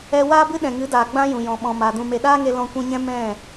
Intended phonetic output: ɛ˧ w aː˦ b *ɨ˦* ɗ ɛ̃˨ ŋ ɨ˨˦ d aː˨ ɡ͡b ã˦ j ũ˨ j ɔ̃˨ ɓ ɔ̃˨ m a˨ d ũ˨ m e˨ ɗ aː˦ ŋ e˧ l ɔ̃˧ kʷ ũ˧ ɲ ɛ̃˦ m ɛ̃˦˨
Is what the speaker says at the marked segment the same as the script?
yes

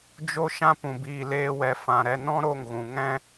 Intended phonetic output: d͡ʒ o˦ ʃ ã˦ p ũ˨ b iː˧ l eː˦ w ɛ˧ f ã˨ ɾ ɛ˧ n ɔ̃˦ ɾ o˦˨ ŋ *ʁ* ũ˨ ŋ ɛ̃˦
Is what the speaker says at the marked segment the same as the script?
no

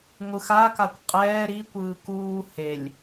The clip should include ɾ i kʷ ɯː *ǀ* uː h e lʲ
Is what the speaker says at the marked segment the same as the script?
no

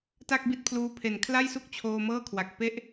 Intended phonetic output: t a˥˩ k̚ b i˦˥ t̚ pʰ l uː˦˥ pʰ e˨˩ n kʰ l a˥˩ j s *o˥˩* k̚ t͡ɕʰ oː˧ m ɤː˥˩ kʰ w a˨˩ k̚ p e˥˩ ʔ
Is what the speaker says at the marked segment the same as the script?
no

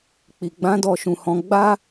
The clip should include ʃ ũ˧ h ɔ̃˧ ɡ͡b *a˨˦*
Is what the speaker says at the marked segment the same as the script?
no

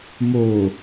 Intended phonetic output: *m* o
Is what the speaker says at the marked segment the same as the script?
yes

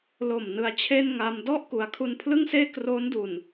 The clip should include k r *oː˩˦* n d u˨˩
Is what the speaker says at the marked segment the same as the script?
no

